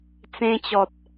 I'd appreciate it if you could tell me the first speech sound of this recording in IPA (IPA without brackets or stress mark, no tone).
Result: t͡s